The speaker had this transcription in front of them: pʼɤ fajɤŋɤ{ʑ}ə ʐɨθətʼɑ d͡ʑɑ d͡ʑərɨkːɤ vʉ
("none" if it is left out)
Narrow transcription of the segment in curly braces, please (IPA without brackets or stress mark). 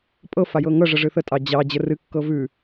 ʐ